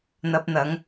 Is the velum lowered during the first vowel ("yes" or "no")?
no